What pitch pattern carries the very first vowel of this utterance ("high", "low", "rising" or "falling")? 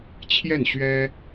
falling